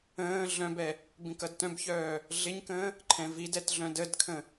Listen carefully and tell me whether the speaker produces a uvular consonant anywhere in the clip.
no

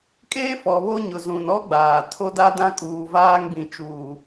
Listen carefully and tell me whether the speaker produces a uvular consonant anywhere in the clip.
no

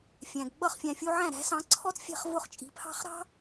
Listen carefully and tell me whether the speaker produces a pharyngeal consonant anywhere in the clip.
yes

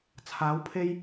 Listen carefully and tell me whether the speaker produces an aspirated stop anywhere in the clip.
yes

